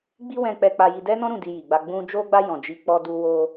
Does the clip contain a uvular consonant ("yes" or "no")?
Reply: no